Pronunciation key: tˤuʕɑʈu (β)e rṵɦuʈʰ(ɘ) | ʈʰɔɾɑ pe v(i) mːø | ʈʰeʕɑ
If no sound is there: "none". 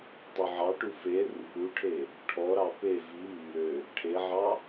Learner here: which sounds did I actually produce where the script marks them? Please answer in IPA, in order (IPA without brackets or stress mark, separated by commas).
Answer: f, e, i